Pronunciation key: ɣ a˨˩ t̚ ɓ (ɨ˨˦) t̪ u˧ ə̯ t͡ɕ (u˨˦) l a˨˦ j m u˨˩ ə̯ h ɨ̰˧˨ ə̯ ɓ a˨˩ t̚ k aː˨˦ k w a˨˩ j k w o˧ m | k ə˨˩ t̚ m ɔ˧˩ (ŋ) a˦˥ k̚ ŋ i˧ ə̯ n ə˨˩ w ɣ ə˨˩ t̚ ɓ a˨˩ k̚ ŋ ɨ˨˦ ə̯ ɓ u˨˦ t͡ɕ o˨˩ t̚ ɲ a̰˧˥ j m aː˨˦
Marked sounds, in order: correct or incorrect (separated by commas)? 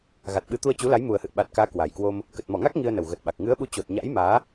correct, correct, correct